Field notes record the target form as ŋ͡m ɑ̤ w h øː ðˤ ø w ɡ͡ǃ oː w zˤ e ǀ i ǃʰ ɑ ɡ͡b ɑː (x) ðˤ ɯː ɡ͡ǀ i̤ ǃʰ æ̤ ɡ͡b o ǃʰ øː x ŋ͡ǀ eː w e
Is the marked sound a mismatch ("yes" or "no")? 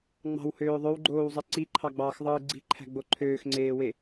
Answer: no